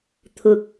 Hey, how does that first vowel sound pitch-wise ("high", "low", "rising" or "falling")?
low